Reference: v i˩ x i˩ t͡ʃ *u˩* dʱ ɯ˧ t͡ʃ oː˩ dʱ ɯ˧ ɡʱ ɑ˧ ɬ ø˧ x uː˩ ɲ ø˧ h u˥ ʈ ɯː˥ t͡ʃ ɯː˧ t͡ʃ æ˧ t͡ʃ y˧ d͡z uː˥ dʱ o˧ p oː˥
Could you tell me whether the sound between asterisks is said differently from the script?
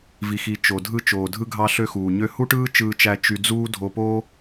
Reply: yes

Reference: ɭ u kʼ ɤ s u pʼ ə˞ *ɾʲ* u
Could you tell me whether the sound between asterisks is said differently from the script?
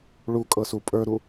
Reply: yes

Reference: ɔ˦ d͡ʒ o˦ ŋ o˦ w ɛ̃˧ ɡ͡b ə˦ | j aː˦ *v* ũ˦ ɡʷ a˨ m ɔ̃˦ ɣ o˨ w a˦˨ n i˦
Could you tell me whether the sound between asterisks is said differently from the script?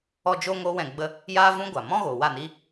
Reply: no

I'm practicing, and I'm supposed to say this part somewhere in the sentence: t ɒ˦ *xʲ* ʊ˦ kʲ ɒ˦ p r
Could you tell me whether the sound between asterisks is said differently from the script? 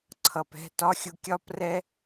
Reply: no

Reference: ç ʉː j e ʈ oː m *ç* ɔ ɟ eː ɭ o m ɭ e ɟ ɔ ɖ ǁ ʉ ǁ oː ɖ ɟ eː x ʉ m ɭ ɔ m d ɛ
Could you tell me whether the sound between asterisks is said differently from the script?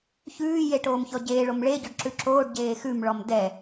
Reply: no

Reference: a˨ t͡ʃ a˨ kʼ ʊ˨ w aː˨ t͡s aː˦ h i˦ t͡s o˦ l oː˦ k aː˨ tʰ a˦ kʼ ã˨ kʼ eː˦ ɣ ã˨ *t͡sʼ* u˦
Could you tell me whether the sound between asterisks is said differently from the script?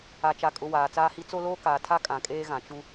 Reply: yes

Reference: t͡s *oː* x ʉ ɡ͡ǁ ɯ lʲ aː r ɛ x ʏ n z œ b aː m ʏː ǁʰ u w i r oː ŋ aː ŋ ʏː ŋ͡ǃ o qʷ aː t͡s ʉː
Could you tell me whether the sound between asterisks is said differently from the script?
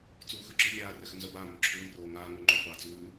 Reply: yes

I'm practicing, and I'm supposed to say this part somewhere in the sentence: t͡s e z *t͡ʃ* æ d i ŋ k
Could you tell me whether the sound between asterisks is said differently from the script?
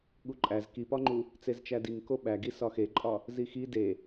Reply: no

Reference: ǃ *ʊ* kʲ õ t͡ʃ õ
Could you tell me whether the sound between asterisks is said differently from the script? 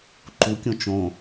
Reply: yes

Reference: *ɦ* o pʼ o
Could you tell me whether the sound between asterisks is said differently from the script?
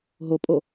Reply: no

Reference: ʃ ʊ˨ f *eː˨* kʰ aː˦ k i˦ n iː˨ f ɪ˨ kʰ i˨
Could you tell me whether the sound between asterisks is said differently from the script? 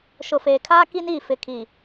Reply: no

